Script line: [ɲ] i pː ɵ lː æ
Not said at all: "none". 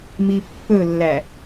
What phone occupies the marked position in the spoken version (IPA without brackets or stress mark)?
m